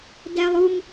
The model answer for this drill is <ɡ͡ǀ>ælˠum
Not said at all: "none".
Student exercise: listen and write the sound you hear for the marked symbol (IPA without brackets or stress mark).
d